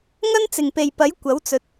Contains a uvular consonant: no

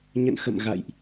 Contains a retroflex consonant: no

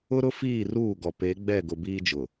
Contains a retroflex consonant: no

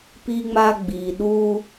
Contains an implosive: yes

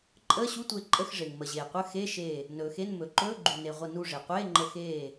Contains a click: yes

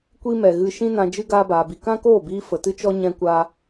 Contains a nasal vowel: yes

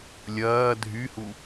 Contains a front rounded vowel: yes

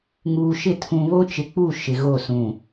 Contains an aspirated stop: yes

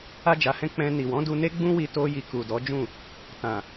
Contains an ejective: no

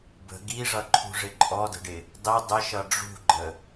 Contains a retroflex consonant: yes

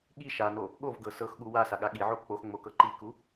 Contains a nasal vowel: no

